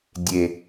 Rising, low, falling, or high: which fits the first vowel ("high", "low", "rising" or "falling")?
low